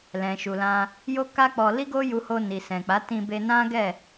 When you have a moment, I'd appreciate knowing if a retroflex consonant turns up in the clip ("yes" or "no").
no